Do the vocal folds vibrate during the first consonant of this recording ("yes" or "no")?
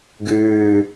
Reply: yes